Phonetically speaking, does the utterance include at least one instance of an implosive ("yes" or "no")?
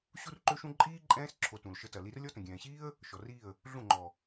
no